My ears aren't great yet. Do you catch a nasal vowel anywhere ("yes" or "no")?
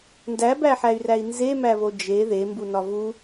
no